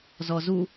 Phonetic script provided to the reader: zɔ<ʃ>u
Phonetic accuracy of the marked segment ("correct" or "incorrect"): incorrect